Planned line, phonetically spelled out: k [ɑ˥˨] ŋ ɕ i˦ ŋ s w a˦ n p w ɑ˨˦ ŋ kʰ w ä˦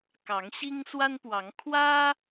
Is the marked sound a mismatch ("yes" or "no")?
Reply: yes